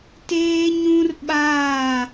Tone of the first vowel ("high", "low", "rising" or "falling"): high